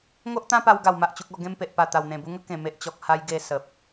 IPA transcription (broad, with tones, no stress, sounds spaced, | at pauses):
ŋ o˦ ʔ t̪ ã˦ p a˧ w ɡ a˨˩ w m a˨ ʔ t͡ɕ u˨ k̚ ɔ˥˧ ɡ ẽ˦ m p e˨ ʔ p a˨˩ t̪ a˨˩ w n̪ ẽ˨˩ b u˧ ŋ ə˦ k ẽ˨˩ m e˨ ʔ t͡ɕ ɔ˨ k̚ h a˧ j ɡ e˧ s ə˨ p̚